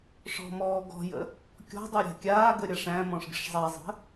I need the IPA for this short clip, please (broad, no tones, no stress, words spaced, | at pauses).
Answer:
ʂɔ̤mɔː ɡɔ̤jə̰ | kʲɔ̤dˤə˞ ɾʲa̤kʲaːɡə ɾʲaʂæ̃mɔ̃ʂ ɡʲəʂzˤæzˤə̤